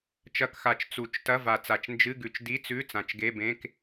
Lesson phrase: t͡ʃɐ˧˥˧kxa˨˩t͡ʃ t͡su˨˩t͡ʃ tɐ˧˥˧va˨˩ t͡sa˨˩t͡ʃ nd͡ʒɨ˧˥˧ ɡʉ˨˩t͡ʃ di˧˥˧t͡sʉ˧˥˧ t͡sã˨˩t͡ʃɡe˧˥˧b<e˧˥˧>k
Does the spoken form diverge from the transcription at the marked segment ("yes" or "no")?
yes